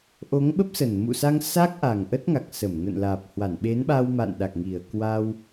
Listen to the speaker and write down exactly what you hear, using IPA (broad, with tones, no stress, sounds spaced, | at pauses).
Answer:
ʔ o˨˦ ŋ ɓ ə˦˥ p̚ s ə˨˩ n m ṵ˧˨ s a˧ ŋ s a˦˥ k̚ ʔ a˨˩ ŋ ʔ ə˦˥ t̚ ŋ a˨˩ k̚ s ə˧˩ m n ə̰˧˨ n l aː˨˩ p̚ h w a˧˩ n ɓ e˨˦ n ɓ a˧ w m a̰˧˨ n ɗ a˨˩ k̚ ŋ i˨˩ ə̯ k w a˧ w